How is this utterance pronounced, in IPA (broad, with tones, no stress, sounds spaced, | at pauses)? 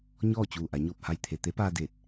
ɲ ɔː˥˨ t͡ɕ uː˧˩ ʔ a˩˧ ɲ oː˧˩ p̚ h a˧˩ j t̪ʰ e˩ t̪ e˧˥ p aː˧ d eː˧˩ t̚